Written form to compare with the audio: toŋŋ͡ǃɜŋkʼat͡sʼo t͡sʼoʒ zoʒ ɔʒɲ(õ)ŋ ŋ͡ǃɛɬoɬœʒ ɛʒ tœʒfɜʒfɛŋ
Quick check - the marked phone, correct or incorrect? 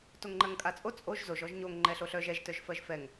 incorrect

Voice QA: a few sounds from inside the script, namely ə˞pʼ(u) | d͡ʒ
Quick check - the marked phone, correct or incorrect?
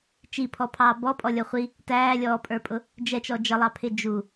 incorrect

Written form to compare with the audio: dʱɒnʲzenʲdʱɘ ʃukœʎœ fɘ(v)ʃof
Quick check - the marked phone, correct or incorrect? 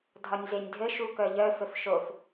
incorrect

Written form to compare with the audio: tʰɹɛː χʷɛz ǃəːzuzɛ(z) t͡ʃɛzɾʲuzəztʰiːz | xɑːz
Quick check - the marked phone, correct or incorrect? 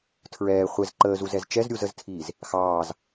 correct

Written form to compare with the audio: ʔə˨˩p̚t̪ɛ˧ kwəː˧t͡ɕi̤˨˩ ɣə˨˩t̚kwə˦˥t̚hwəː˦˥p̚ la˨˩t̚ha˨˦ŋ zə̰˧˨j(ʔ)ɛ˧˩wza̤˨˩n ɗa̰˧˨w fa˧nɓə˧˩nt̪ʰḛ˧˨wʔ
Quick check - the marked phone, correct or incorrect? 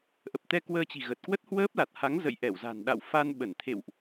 correct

